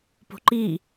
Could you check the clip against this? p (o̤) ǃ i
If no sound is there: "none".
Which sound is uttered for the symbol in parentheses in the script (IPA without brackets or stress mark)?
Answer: o̤